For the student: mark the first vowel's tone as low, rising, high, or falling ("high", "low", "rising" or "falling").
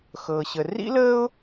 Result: low